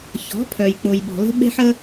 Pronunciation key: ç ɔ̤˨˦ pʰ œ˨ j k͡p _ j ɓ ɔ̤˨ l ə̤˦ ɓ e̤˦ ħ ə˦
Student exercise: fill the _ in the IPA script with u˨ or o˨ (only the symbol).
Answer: o˨